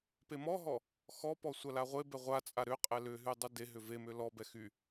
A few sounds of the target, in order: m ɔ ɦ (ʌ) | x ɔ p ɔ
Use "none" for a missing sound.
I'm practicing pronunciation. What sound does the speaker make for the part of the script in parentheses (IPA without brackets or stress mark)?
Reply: ɔ